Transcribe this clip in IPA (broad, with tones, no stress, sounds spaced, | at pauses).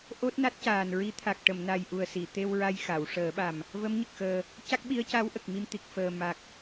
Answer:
ʔ o˦˥ t̚ n a˦˥ t̚ c aː˨˩ n ɹ i˧˥ t̪ʰ a˨˩ k̚ ʈ ə˨˩˨ m n a˨˩ j ʔ u˨˩ ə̯ s i˨˩˨ t̪ e˧ w ɹ a˧ j x a˨˩˨ w ʂ əː˨˩˦ ɓ a˨˩ m | v ə˧˥ m ɲ ə˨˩ k̚ x əː˨˩ | c a˦˥ k̚ ɓ i˧˥ ə̯ c a˧˥ w ʔ ə˨˩ k̚ m i˧ m t̪ i˨˩ k̚ f əː˨˩ m a˨˩ k̚